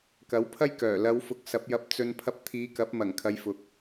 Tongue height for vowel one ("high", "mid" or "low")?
low